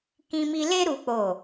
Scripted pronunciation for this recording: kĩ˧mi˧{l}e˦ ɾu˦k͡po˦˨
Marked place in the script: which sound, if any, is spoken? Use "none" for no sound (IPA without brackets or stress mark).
l